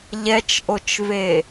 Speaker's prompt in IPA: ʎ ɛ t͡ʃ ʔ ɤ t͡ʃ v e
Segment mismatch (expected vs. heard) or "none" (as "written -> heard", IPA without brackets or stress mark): ɤ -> o